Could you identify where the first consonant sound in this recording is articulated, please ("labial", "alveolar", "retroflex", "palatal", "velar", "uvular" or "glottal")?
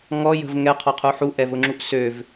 velar